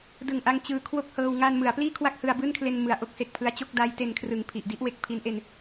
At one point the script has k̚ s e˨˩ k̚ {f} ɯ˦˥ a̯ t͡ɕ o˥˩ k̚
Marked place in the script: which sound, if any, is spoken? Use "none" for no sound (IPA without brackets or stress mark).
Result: pʰ